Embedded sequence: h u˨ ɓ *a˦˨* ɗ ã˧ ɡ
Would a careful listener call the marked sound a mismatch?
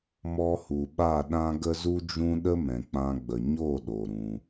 no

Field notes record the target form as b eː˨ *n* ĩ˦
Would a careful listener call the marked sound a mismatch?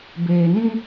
no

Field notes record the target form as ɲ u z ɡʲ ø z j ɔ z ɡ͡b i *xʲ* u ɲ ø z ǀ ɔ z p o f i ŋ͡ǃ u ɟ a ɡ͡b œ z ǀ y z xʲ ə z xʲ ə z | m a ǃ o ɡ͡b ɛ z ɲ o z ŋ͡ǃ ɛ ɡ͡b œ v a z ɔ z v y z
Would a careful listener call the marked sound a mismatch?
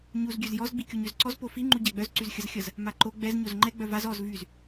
yes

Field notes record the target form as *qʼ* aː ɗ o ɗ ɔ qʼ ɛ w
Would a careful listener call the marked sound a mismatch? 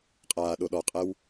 no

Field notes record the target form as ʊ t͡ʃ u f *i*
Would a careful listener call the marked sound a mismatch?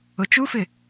yes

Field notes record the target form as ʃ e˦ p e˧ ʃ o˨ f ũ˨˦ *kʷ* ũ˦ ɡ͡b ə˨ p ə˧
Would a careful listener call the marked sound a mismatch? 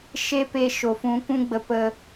no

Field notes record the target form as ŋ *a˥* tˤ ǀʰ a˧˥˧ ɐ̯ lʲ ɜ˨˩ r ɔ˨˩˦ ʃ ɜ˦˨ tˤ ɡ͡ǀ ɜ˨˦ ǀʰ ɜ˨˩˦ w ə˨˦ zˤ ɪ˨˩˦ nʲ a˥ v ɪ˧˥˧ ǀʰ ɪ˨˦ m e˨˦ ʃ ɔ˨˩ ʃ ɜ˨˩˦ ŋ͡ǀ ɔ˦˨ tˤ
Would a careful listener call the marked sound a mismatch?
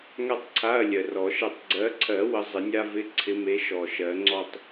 no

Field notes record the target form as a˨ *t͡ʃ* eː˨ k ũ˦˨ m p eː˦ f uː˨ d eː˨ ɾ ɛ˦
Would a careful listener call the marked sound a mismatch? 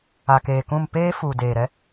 yes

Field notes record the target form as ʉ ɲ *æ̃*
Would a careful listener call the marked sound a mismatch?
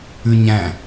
no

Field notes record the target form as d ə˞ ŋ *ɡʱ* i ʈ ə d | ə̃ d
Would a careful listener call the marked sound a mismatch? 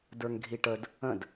no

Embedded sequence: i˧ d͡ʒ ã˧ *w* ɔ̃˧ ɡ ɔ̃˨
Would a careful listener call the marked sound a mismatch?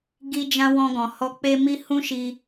no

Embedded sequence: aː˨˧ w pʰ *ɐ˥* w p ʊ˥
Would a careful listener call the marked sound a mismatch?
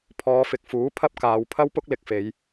no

